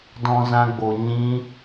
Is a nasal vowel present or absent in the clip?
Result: present